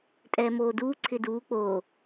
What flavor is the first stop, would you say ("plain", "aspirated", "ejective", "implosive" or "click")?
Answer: ejective